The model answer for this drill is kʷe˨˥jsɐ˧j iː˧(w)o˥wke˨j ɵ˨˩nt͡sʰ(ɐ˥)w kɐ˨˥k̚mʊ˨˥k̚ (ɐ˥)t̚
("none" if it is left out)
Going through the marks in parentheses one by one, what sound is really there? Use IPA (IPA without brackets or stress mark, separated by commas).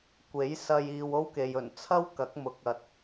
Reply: w, ɐ˥, ɐ˨